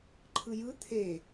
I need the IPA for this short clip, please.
ǃʰɯjɯ t̪ʰe

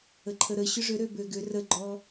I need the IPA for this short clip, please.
əǃʰəɾə ɕʏʐʏ ɾøbøɡʏ rəɡ͡ǃɔ

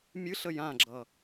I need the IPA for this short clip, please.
mʲɨɬə jãɡ͡ǁʌ

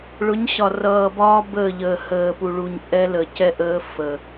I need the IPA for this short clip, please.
ɭʊ˨˦ɲɕɒ˨rʌː˨bɒː˦ bəː˦˨ʎəː˨həː˨pu˨ ɭu˨ɲ ʔɛ˦lə˨ cɛ˦ʔəː˦ fə˨

